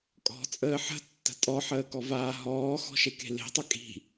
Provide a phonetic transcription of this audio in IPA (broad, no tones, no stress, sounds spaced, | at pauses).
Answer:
kʼ ɔ̤ t͡sʼ əː ħ ə̤ tː ə̤ tʼ ɔ ħ əː k ɔ v aː ɦ ɔː x ɔ̤ ʃ e k e̤ l e̤ tˤ ə kʼ i̤